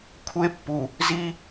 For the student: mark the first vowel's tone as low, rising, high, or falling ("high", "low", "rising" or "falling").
high